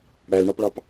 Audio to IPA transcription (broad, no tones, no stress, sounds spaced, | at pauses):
ɽ æ l ɳ ɑ p ɭ ɑ p